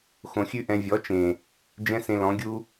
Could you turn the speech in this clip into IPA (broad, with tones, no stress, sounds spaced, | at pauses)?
x õ˨ xʲ ʉ˦ ʔ ɛ̃˧ vʲ ɔ˨˦ t͡ʃ ẽ˨ | d͡ʒ ɛ̃˦ s ẽ˧ l ɔ̃˨˦ ɡʲ u˦